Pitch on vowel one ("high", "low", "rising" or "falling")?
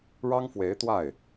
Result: high